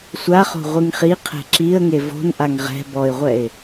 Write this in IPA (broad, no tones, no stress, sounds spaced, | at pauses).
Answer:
sʷ a χ o̤ ʁʷ ɨ ŋ χ i qʰ ɛ̤ ǁ i ə̯ ŋ e v o̤ n ʔ a ŋ ʁ ɛ̤ b ɔ ɪ̯ ʁʷ ɛ ɪ̯